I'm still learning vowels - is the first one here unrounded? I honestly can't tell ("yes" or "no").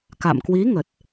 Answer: yes